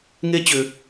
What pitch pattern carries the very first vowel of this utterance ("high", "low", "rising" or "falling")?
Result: high